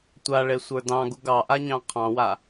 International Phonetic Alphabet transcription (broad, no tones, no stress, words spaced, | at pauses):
tʷaɭe sʷə˞dɑ̃ɡuɡ ɑʔaɲɑ̃ qʰɑ̃wa